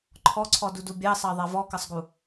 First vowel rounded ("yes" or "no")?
yes